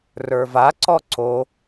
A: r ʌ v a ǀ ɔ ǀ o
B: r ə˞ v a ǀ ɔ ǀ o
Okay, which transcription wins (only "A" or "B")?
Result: B